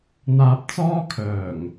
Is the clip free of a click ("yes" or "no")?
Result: yes